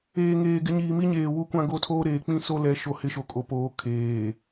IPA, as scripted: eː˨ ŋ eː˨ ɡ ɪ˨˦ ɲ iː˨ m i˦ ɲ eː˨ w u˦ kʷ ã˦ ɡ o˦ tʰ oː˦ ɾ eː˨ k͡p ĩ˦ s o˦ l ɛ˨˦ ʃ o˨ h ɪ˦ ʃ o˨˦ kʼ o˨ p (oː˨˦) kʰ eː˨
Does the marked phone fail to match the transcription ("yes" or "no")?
no